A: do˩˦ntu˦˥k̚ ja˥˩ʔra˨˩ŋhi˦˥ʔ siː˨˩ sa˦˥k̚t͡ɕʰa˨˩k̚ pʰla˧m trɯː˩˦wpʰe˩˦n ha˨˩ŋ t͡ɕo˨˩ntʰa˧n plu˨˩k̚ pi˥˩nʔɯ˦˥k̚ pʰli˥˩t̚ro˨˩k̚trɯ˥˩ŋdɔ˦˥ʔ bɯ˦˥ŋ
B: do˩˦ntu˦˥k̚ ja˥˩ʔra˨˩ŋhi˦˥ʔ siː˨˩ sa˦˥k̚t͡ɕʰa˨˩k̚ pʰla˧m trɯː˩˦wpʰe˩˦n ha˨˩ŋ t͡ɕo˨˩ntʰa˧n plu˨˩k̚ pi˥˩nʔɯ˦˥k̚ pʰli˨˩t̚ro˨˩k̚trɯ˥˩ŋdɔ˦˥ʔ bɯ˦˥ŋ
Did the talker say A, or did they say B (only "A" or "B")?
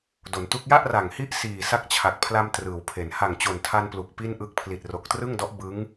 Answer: B